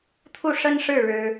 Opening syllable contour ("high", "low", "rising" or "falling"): falling